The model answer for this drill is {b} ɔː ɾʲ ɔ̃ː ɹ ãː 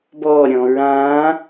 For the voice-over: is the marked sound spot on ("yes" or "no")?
yes